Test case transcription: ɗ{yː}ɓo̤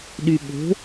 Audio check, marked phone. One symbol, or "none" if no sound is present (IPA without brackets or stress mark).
y